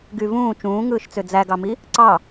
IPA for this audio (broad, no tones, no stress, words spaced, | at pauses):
ɡyvũː t͡ʃũːŋɯːʃt͡sø d͡zæɡɑmi | ǀɑ